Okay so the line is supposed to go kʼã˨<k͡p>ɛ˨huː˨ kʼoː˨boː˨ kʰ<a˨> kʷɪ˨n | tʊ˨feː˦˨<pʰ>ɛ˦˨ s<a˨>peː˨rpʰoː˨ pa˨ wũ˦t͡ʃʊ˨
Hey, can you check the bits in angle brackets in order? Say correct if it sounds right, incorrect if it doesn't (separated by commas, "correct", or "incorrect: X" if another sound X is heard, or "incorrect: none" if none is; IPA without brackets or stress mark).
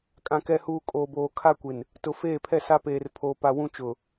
incorrect: k, incorrect: a˦, correct, incorrect: a˦